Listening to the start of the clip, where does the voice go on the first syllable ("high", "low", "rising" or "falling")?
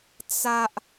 high